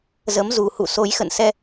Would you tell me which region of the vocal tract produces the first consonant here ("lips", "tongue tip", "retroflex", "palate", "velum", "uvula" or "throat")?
tongue tip